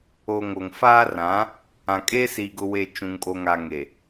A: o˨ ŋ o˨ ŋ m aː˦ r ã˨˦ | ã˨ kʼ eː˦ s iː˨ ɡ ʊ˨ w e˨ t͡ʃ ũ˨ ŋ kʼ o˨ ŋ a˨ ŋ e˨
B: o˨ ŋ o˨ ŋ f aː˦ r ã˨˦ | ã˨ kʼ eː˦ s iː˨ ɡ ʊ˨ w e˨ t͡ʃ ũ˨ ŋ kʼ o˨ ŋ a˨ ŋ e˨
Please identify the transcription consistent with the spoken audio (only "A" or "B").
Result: B